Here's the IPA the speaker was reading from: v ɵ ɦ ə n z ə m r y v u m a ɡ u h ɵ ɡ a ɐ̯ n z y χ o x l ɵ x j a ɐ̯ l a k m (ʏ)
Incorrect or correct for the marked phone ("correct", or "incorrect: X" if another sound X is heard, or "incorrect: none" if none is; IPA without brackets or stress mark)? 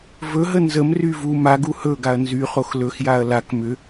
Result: correct